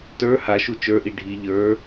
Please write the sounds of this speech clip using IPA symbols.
t ə˞ h a ʃ u t͡ʃ ə˞ ʔ i ɖʱ i ʎ ə˞

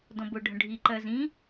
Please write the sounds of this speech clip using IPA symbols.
d ɔ̃ b ʊ ɖʱ ə̃ ɖʱ i ǃ ɜ z ĩ

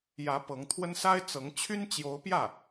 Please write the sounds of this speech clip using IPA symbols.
j ä˧˥ p ɤ˧˥ ŋ t̪ʰ w ə˥ n s a˥ ɪ̯ t͡s ɤ˧˥ ŋ t͡ɕʰ y˥ n t͡ɕ j o˧˥ ʊ̯ p j ä˥˩

